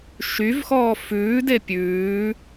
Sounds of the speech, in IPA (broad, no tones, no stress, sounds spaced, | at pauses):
ʃ y v x ɔː f ʉː d e pʲ ʉː